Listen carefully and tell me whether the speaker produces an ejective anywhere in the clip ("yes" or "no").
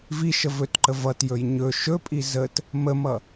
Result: yes